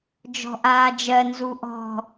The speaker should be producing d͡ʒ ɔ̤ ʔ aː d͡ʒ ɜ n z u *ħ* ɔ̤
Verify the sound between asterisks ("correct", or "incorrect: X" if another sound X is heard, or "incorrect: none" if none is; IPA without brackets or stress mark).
incorrect: ʔ